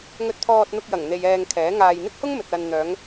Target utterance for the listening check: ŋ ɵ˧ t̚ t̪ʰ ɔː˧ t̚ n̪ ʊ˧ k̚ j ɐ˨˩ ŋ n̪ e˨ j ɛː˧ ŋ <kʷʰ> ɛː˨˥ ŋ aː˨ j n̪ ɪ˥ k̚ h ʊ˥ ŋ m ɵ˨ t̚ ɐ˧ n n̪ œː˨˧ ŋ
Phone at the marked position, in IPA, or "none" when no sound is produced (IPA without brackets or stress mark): kʰ